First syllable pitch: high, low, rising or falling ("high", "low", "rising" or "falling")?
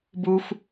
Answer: high